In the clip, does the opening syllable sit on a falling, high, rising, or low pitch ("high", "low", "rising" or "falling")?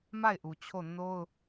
falling